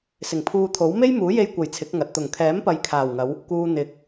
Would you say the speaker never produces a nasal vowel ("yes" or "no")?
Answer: yes